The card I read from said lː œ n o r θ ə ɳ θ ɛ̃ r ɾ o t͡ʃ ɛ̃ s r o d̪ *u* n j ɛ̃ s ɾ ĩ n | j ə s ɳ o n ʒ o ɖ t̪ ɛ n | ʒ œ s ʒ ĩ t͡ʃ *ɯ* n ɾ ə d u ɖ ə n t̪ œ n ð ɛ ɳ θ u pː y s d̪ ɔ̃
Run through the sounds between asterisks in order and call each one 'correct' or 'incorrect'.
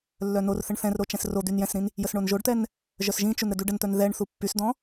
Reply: incorrect: y, incorrect: u

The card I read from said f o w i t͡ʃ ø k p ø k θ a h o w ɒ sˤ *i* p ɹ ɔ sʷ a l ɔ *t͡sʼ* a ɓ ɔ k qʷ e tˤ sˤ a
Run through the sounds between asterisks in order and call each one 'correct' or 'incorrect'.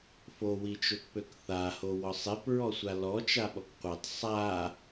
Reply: incorrect: e, incorrect: t͡ʃ

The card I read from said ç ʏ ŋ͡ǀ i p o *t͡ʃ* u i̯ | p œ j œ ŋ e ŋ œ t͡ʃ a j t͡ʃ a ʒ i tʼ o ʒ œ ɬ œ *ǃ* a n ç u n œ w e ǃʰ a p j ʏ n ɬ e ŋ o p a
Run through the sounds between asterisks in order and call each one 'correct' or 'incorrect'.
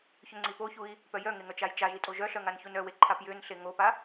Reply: incorrect: ç, incorrect: ŋ

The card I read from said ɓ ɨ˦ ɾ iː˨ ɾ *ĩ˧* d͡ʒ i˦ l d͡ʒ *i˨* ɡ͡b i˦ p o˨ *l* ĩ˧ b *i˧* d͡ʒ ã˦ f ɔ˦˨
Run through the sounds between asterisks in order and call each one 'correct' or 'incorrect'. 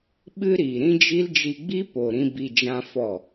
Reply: incorrect: ĩ˦, incorrect: i˧, incorrect: ɾ, correct

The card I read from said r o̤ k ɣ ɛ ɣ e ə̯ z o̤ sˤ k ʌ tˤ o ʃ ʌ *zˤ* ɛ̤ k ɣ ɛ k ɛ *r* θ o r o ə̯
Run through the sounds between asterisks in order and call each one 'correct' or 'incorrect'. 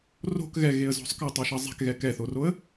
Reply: correct, incorrect: none

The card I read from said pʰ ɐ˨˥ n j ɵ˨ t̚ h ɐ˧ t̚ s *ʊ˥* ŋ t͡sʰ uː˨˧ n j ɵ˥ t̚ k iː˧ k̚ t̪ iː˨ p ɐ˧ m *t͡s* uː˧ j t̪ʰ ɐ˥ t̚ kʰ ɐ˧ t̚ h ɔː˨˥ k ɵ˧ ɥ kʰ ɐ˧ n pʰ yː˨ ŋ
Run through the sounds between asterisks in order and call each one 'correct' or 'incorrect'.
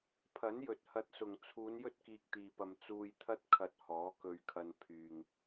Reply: incorrect: ʊ˨, correct

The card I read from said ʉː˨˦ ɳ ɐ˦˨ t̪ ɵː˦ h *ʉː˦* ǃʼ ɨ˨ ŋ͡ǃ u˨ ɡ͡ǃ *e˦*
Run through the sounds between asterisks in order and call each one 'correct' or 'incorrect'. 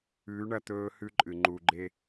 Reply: incorrect: ʉ˦, correct

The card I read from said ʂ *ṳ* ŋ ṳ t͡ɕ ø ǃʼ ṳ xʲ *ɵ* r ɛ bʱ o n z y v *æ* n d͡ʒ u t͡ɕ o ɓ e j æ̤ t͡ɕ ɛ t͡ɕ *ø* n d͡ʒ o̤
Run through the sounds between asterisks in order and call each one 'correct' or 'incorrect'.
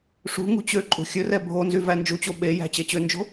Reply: correct, correct, correct, correct

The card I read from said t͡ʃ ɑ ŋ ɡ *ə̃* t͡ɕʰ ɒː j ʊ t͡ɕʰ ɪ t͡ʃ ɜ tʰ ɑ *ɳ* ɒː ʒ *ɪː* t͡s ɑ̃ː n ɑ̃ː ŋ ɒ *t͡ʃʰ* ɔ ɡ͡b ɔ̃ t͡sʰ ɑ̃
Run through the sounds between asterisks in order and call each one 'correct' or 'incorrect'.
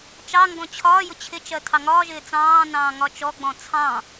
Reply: incorrect: ɔ̃, incorrect: ŋ, correct, incorrect: t͡ʃ

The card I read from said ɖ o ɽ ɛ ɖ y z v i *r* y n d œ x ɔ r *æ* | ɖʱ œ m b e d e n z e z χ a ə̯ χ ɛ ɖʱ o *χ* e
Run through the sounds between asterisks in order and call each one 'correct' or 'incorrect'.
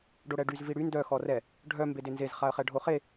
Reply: incorrect: ɽ, incorrect: ɛ, correct

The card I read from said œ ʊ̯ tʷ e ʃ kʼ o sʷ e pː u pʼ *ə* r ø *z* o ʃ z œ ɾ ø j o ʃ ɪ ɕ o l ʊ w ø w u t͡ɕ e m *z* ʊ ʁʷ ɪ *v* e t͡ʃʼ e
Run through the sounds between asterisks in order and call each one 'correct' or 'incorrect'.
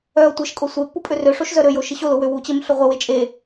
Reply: incorrect: ø, incorrect: ʂ, incorrect: ɬ, incorrect: w

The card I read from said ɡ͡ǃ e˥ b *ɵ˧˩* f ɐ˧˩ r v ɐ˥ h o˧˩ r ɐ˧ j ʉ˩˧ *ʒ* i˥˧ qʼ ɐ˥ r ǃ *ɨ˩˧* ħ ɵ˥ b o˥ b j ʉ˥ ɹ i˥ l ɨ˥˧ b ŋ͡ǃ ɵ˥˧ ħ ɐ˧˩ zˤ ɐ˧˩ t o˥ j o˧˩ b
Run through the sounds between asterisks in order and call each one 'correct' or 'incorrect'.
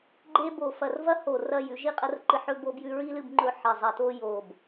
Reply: incorrect: o˧˩, correct, incorrect: ɨ˧

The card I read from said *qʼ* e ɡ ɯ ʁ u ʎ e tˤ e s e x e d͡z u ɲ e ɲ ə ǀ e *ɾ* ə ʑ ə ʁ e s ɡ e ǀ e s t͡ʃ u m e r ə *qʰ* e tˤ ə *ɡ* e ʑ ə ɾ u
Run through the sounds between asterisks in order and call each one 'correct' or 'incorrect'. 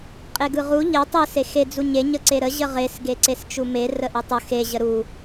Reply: correct, correct, incorrect: ʔ, incorrect: x

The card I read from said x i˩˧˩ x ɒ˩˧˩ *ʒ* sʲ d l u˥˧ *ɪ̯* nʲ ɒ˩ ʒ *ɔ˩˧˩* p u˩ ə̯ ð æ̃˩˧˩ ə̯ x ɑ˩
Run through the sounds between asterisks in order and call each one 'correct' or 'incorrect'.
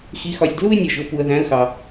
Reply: incorrect: none, correct, incorrect: ʊ˩˧˩

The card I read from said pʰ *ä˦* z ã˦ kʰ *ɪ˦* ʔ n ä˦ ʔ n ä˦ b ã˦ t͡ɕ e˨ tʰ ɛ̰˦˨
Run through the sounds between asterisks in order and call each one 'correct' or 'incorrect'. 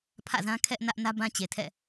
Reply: incorrect: ä̰˦˨, incorrect: ɛ˦

